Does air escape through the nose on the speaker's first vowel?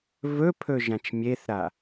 no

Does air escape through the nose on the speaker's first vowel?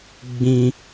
yes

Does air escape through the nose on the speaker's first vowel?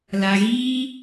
no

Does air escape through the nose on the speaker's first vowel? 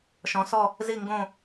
yes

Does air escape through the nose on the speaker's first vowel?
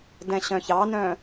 yes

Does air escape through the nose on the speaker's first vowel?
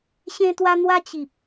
yes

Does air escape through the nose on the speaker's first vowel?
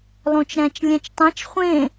yes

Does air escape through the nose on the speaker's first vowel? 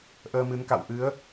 no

